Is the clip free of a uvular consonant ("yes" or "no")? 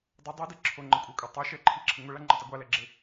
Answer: yes